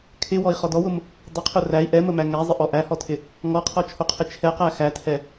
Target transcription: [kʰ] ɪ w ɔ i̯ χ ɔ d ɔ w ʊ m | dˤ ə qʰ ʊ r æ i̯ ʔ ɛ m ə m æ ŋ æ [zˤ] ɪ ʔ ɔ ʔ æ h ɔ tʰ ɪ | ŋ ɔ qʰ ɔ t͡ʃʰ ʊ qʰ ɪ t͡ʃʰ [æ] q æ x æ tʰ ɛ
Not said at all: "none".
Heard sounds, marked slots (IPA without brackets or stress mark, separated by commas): kʰ, zˤ, ɛ